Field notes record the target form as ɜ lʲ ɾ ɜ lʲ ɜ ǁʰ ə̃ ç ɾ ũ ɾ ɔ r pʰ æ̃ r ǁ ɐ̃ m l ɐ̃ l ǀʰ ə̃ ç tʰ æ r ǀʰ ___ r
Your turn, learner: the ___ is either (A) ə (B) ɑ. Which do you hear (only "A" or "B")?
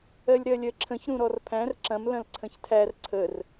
A